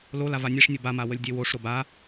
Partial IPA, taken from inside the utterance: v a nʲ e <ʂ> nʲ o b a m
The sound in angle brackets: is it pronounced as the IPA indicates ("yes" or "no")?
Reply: yes